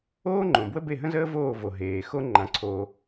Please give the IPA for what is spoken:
oː˥ ŋ͡ǃ õ˩ b w ə˥ b e˥˩ ɦ ə̃˥ z əː˥ v oː˥˩ v o˩ ɦ eː˩ x o˥ ŋ͡ǃ ã˩ ǀʰ oː˩

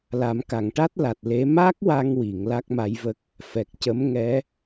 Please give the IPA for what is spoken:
l a˨˩˦ m k a˨˩˨ ŋ ʈ a˦˥ t̚ l a˨˩ t̚ l e˧˥ m a˦˥ k̚ w a˧ ŋ w i˨˩˨ ŋ l a˦˥ k̚ m a˧˥ j v ə˦˥ k̚ | f ɛ˨˩ k̚ c ə˧˥ m ŋ ɛ˧˥

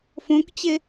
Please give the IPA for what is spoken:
f õ k t͡ɕ e

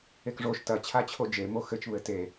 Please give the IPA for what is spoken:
e k ʐ o ʃ t ɐ t͡ɕʰ a t͡ɕʰ o d͡ʒ e m o x ɘ t͡ʃ β ɘ t e

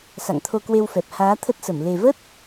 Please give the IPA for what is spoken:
s a̰˧˨ ŋ t̪ʰ o˧ k w e˧ w f ɛ˨˩ p̚ h aː˨˦ t̪ʰ ə˦˥ t̚ s ə˧˩ m l e˨˩ v ə˦˥ t̚

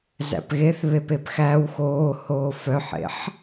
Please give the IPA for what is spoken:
z æ̰ p ɣ e θ β e p e p x æ w x oː h oː f œ ħ ḛ ħ

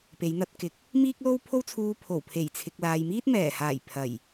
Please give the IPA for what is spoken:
p e˨˧ j n̪ ɐ˧ t̚ k ɪ˨˥ k̚ | m iː˥ k̚ l o˥ w pʰ o˥ w t͡sʰ uː˧ pʰ o˨˩ w pʰ e˨˩ j t͡sʰ ɪ˨ k̚ l aː˨ j m iː˥ t̚ m ɛː˨˩ h aː˨˩ j pʰ ɐ˨˩ j

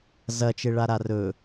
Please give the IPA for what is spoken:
z ɐ t͡ʃ e ɭ a ɾ a r ɵ

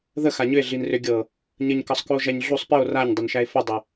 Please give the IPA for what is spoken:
ð ə x a ɲ ʏ e̯ ɮ i n r ʏ ɡʲ ɤ | ɲ ə ɲ k ɤ sˤ k u o̯ ʒ æ ɲ ɮ u sˤ p i o̯ r a ɲ dˤ ʏ n ʃ æ e̯ f ə dˤ ʏ

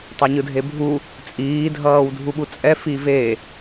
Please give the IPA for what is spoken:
tˤ a ɲ ɯ dʱ e bʱ u | t͡sʼ iː dʱ ʌː w dʱ u ɓ u t͡sʼ ɛ f i v e

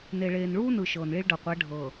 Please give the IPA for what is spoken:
n e˨ ɭ eː˨ n ɭ uː˦ n ɯ˨ ʃ ɤː˨ n ɭ i˦ ɭ ɖ ɤ˨ qʷ ɛ˨˦ ɖʱ ɤː˨

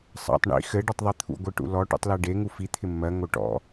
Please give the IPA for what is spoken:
sˤ ɑ̰ tˤ ɳ ḭ x ɘ ɖ ɔ tˤ ðˤ i t̪ʰ ṵ ɡʷ ɘ ʈ ṵ l ɔ ʈ ṵ tˤ l ɜ ɖ e ŋ u f i t̪ʰ ɪ mː ɜ ŋ o ʈ ɔ̰

